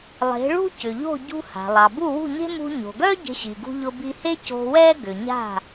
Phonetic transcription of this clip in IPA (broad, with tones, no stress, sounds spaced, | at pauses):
lˠ e̤˩˥ ɭ ṳ˥ c ʏ˩ ʎ o̤˥˩ ɟ ṳ˧ h a̤˩ lˠ ɑ˩ b u˥˩ w ṳ˥˩ ɲ e̤˥ m ṳ˧ ɲ o̤˩ ɡ œ˥ ɟ e̤˧ ɕ i˩ ɡ ṳ˧ ʎ ʊ˧ b i˧ h e˥ c o̤˧ w ɛ˥ ɡ ʏ˩ ɲ a̤˥˩